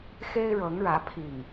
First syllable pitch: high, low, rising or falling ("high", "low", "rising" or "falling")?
high